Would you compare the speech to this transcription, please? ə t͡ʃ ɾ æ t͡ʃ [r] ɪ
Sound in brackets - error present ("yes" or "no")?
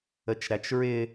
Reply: yes